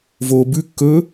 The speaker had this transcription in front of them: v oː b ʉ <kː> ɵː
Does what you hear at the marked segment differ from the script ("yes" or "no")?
no